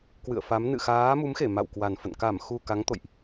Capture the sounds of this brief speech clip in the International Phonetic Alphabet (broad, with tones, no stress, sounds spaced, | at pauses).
k w ɨ̰˧˨ ə̯ f a˨˦ m n ɨ̰˧˨ x aː˨˦ m u˨˦ m x e˧˩ m a̰˧˨ w k w a˨˩ n f ə̰˧˨ n k a˧˩ m x u˨˩ k a˨˦ ŋ t̪ o̰˧˨ j ʔ